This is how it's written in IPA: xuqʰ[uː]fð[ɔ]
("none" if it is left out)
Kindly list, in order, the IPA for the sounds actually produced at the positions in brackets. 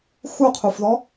u, ɔ

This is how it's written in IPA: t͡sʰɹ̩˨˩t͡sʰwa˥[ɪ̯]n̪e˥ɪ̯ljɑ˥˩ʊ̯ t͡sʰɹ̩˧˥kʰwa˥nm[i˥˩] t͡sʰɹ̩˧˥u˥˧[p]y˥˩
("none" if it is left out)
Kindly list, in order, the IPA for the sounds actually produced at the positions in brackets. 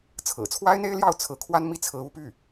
ɪ̯, i˥˩, p

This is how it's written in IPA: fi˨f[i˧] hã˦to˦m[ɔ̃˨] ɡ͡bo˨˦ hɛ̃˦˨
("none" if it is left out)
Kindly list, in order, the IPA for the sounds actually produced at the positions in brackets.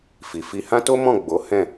i˧, ɔ̃˦˨

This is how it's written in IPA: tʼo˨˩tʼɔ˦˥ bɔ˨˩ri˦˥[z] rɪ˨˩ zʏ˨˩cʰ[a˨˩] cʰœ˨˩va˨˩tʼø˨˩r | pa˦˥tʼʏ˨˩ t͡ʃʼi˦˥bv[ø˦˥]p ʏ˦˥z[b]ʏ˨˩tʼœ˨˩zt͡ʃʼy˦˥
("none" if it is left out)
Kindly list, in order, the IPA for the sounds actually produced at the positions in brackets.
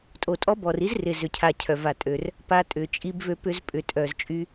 z, a˨˩, ø˦˥, pʼ

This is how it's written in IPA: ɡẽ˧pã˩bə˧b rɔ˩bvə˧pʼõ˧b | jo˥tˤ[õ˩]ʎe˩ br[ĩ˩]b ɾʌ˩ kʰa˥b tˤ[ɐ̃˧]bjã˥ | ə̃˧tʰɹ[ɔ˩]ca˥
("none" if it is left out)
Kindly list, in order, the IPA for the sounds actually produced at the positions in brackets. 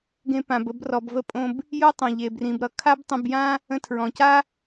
õ˩, ĩ˩, ə̃˧, ɔ̃˩

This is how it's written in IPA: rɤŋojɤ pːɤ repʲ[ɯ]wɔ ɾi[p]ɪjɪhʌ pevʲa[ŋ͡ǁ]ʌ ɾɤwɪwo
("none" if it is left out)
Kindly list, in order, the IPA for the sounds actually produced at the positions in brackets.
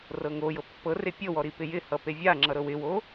ɤ, p, ŋ͡ǁ

